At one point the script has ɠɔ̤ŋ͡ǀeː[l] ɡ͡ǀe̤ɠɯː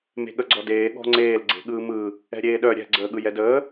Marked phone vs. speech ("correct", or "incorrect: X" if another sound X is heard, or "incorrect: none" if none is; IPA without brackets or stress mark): correct